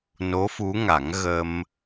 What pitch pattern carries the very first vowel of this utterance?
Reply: rising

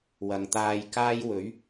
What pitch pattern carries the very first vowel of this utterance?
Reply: low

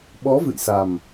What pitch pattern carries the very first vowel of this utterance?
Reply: rising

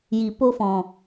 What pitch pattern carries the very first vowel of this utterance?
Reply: low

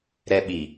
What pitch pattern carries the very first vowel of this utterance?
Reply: high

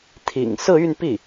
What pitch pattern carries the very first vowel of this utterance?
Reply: low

